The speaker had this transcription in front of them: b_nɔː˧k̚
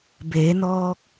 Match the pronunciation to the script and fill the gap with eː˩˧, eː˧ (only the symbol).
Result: eː˩˧